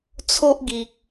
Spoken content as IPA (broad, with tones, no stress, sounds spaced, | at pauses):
t͡sʰ o˦ ʔ ɡ i˨ k̚